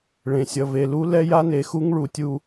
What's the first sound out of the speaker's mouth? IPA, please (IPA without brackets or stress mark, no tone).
ɭ